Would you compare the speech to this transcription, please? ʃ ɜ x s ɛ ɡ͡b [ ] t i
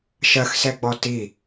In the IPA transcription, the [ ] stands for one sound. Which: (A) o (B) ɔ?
B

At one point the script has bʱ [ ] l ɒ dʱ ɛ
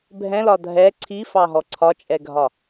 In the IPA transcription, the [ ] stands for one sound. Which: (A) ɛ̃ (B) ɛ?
A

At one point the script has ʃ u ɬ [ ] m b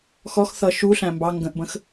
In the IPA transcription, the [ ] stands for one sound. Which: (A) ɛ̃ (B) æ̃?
B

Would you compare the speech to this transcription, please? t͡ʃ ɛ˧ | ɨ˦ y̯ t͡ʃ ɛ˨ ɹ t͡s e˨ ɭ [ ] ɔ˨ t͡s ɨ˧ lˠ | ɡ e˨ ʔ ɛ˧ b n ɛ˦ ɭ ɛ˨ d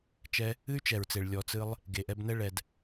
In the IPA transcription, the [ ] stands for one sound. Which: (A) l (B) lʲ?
B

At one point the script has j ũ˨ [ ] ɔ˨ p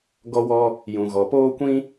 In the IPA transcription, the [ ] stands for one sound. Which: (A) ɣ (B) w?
A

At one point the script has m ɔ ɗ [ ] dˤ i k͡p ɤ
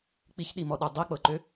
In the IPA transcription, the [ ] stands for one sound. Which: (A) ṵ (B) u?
B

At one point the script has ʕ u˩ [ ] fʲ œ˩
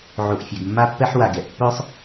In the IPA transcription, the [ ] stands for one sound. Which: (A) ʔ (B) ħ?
A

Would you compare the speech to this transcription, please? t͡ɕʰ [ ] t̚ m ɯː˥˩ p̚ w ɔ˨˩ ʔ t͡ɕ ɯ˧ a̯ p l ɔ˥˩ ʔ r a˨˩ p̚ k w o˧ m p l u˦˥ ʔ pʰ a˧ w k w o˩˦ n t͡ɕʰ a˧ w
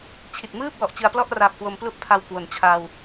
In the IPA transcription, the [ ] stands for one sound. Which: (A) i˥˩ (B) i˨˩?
B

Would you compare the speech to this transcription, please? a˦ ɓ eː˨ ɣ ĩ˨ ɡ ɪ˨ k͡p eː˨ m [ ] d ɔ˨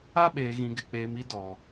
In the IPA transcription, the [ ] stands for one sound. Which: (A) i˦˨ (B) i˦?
B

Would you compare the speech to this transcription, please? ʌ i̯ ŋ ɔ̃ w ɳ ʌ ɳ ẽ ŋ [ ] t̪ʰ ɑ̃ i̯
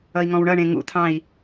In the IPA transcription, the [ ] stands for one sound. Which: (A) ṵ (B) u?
A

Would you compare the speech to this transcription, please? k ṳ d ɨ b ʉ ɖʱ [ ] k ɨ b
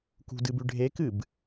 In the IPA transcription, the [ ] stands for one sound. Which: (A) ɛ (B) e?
B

